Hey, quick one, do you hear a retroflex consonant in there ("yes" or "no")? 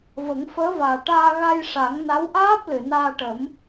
yes